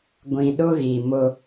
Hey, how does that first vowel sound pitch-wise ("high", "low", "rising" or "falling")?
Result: low